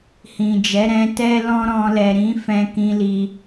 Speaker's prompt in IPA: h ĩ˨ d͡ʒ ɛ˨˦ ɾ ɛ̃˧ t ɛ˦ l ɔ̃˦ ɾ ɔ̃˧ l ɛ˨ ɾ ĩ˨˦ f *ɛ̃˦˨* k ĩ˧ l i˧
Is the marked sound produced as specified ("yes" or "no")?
no